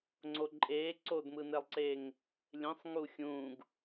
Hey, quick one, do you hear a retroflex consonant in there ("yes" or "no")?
no